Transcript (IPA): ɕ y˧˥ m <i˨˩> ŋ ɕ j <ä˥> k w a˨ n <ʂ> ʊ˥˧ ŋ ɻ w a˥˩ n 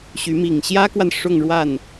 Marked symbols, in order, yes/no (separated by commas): yes, yes, yes